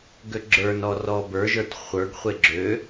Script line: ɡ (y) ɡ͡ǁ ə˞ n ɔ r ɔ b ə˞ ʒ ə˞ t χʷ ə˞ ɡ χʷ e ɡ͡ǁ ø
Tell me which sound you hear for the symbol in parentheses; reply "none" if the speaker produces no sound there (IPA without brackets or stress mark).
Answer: ø